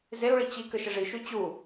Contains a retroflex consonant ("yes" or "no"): yes